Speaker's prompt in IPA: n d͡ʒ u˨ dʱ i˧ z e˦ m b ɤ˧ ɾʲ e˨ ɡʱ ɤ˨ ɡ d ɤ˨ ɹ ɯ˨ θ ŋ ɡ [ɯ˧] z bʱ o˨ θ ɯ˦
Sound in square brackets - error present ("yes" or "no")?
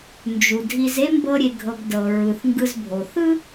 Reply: no